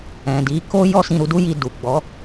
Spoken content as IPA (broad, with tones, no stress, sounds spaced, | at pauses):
ɛ̃˨ d i˨˦ k o˦ j ɔ˦ s ĩ˧ ɾ u˧ d u˦ j i˧ d u˨ ɡ͡b ɔ˨˦